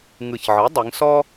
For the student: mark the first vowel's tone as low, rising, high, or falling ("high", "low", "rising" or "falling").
low